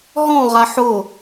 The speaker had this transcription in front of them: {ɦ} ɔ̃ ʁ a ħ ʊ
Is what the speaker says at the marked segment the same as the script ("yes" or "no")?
yes